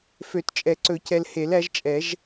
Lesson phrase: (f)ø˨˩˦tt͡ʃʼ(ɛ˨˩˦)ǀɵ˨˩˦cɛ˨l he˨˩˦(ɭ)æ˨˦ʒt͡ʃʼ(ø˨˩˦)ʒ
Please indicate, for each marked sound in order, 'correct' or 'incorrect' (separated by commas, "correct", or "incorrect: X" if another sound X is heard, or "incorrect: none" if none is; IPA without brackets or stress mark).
correct, correct, incorrect: l, incorrect: ɛ˨˩˦